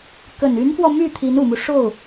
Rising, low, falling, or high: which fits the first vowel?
low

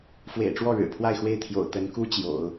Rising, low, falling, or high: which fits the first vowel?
low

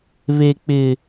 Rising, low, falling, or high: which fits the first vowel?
high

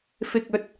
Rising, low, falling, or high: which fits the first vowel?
low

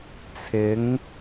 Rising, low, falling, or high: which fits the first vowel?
rising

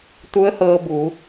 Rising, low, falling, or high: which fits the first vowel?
rising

